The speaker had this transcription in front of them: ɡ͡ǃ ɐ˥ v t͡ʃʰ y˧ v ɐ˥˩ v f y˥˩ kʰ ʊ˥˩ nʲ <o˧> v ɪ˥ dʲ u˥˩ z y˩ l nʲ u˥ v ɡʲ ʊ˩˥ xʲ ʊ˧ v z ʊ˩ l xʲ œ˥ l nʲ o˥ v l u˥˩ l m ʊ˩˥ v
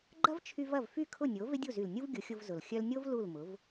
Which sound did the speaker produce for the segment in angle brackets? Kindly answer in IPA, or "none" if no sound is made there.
o˩˥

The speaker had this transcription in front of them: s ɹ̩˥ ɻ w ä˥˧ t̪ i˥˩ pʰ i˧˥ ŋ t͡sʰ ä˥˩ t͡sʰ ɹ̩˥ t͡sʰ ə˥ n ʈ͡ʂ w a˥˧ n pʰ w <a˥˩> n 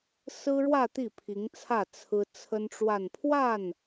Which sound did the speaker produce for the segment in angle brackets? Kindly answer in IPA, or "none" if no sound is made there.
a˥˩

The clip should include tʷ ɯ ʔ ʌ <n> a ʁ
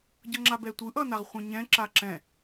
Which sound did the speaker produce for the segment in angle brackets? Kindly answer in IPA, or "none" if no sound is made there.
n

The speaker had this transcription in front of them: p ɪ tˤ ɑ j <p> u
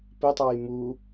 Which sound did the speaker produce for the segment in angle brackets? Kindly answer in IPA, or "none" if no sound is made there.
m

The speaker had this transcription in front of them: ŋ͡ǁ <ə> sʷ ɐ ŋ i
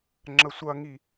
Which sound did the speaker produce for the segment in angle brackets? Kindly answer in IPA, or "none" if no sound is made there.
ə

